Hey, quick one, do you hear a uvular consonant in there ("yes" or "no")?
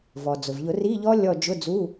no